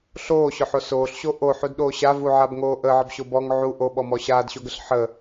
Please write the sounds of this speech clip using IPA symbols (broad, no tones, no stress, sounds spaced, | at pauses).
ɬ oː ɕ ʊ ħ o s oː ɬ ɕ o ʔ o ħ u d ɗ oː ɕ a v u ʕ a b ŋ oː ʔ əː ʕ ə b ɕ o b ɔ ŋ ʕ u ʔ o ɓ ɔ m ɔ ɕ aː d ɕ o ɡ ə ɬ ħ ə